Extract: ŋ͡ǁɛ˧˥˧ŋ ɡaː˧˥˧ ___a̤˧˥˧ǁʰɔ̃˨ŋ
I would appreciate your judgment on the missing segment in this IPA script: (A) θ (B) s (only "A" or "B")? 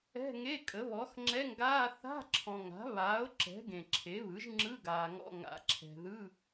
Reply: A